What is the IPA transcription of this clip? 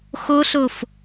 x o ɬ o f

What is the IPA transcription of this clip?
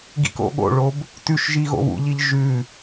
ɡ ḭ k o̰ ɠ o̰ ɭ o b | t ʉ ʃ ʒ i ɣ o̰ β ṵ ʎ i ʎ ʒ ʉ

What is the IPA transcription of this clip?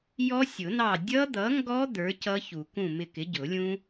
j ɔ˦˥ sʲ ʊ˨˩˦ n ɑ˦˨ dʲ ʌ˦˥ d̪ ʌ˨˥ ŋ ɡ ɔ˦˥ d̪ ə˞˨˥ c ʌ˦˥ ç u˨˩˦ k ũ˦˨ m ɪ˦˨ k ɪ˨˥ ɟ ʊ˨˩˦ lʲ ũ˦˥

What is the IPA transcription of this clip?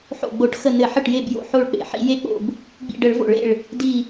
ħ o̰˧˩ ɡ͡b o˧˩˧ ʈ x ə˧˩ n ɘ˧˩˧ ħ ɘ˧˩ ʈ j e˧˩ b j o̰˧˩ ħ o˧˩ ɭ k͡p ḛ˧˩˧ ħ ḭ˧˩˧ j e˧˩ k͡p o̰˧˩ b | ɡ͡b ḭ˧˩ ɖ ə˧˩˧ ɭ v o̰˧˩˧ ɭ ḛ˧˩ ɭ | d i˧˩

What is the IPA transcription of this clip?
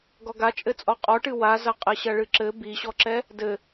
ɡ ɔ ɡ a t͡ʃʼ ɘ t͡sʼ ɔ qʼ ɔ ʈ ɨ w a z ɐ qʼ ɘ ɕ ɐ ɭ ɨ ǁ ɘ b i ɕ ɔ ǁ ɛ | d ɘ

